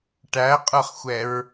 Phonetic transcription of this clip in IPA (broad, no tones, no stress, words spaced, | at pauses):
ʈæqʼə˞χxʷɛɹ